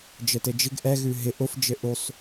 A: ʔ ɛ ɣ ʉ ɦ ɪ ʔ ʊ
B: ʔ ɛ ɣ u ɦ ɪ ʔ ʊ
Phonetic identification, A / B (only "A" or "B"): A